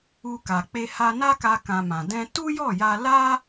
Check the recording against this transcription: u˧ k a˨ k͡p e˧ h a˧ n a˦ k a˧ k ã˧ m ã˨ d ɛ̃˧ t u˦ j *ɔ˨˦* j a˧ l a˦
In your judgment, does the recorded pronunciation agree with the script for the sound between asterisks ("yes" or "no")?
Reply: no